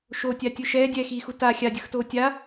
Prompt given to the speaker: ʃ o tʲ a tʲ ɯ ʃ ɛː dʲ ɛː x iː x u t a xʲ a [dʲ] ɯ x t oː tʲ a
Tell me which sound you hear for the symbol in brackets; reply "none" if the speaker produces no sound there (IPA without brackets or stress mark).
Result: dʲ